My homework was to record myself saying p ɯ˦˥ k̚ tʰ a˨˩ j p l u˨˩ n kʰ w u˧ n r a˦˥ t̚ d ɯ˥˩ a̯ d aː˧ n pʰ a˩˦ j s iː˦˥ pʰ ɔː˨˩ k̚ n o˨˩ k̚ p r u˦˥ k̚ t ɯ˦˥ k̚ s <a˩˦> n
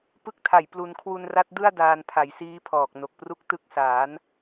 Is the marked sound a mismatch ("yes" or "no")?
yes